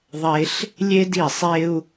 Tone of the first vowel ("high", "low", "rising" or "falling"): high